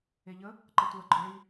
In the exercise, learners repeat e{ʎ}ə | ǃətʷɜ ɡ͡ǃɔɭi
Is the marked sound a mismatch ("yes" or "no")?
no